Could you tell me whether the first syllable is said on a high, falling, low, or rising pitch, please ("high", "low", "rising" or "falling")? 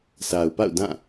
low